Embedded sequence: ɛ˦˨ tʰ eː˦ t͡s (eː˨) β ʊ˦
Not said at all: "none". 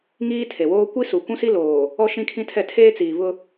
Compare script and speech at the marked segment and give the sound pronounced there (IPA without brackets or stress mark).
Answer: iː˨